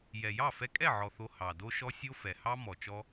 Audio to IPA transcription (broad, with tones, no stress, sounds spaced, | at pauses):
j ɛ˨ j ɑ˦˨ f ɛ˧ kʼ ɛ˦˨ ʕ ɔ˨ θ o˧ h ɑ˨ d o˦ ʃ ɔ˦ sʲ o˦ f ɛ˨ h ɑ˦ m ɔ˨ t͡ʃ ɔ˧